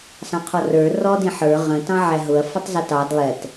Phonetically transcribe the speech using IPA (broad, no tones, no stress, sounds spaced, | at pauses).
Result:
s ɑ̃ qʰ ɔ r ə˞ r ɔ d ĩ ħ ə˞ ʁ ə̃ t ɑ̃ ʕ æ ɦ ʊ ɐ̯ f ʌ tˤ z ʌ t ɑ d lˠ ɛ t